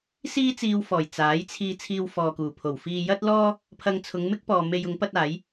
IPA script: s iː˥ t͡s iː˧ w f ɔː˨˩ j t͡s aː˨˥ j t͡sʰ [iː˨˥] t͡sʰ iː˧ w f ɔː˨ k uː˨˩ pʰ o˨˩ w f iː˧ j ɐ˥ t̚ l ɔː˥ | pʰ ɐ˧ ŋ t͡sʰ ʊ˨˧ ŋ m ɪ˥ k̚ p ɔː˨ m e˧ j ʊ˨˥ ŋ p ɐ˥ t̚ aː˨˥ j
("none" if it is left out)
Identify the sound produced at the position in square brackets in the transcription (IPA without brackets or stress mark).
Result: iː˧